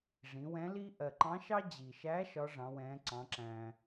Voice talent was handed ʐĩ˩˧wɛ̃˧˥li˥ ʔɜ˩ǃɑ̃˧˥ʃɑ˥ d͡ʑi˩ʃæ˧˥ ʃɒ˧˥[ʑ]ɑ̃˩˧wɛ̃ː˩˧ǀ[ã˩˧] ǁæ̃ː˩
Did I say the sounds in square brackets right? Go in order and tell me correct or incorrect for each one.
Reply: incorrect, incorrect

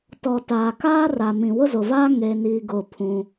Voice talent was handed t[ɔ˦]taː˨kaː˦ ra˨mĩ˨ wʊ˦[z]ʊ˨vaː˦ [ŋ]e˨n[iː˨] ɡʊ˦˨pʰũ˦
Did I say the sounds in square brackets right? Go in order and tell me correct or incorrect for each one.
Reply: incorrect, correct, correct, correct

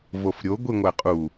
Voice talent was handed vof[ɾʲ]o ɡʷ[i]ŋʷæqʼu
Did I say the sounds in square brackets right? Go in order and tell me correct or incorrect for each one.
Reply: correct, correct

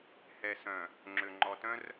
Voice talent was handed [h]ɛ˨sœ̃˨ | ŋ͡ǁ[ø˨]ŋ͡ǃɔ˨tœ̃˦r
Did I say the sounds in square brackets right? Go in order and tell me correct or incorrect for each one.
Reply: correct, correct

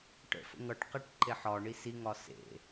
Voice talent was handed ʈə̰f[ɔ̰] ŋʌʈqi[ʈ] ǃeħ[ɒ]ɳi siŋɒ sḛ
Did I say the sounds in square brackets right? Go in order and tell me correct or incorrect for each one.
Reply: incorrect, correct, correct

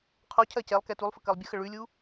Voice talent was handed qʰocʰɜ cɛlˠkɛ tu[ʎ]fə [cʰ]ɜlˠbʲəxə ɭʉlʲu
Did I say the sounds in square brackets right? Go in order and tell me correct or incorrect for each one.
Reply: incorrect, incorrect

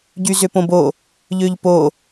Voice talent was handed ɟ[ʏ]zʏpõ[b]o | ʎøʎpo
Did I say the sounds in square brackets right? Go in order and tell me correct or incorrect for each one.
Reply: incorrect, correct

